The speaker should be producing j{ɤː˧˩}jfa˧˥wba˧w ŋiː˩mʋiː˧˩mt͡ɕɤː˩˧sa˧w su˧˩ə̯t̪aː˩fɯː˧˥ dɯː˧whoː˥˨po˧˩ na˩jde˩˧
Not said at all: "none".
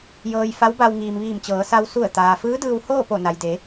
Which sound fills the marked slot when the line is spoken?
ɤː˧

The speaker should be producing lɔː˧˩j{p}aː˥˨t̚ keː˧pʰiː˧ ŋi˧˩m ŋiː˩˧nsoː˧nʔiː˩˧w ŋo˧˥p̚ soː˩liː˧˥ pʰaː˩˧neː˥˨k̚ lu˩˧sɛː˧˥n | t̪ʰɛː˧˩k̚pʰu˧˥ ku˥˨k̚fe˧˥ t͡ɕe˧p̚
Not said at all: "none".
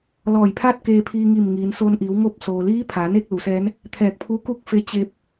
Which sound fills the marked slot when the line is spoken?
pʰ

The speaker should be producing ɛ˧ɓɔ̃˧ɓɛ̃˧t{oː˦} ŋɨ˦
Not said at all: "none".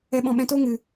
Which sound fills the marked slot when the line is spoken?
oː˦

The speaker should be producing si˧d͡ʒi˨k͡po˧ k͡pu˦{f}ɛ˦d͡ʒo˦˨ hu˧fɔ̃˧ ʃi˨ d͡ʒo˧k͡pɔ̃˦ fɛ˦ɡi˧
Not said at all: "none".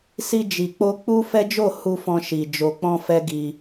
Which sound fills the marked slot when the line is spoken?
f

